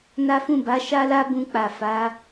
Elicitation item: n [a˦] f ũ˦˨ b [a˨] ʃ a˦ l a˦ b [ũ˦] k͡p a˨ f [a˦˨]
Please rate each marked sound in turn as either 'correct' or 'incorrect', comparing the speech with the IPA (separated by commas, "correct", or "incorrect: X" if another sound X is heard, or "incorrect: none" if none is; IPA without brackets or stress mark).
correct, incorrect: a˨˦, incorrect: ũ˧, incorrect: a˨˦